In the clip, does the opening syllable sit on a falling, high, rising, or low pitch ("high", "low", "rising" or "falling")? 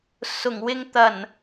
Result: low